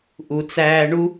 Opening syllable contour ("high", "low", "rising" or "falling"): low